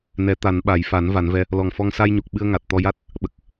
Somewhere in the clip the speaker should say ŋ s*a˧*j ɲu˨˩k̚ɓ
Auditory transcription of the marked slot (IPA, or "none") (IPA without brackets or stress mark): a˧